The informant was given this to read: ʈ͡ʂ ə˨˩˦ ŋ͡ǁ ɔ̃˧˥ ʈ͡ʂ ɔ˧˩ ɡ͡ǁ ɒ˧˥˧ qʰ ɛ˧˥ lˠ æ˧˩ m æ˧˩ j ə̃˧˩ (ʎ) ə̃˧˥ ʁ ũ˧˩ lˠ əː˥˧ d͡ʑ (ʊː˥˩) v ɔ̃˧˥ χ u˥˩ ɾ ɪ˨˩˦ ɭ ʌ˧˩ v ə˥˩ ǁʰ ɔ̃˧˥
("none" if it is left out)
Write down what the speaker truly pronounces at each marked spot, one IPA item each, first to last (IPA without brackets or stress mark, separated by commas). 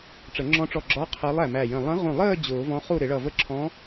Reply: lˠ, ʊː˨˩˦